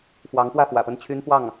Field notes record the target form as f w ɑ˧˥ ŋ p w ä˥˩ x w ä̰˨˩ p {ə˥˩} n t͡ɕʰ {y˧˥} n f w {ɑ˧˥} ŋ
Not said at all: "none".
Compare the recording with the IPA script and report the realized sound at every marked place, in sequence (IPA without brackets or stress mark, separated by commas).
ə˥˩, y˥, ɑ˥˩